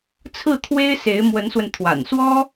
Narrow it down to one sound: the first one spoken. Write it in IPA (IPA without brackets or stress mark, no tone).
t͡sʰ